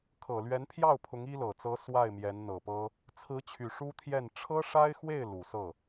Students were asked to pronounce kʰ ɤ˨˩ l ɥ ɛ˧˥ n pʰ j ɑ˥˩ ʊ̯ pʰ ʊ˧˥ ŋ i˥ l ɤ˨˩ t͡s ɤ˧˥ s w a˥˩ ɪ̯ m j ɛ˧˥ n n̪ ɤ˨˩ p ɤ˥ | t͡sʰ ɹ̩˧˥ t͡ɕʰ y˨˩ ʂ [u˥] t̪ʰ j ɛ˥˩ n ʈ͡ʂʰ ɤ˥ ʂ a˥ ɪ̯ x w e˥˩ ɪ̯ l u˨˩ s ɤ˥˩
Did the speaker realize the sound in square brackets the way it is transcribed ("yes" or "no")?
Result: yes